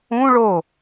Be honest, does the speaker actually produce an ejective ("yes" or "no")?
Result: no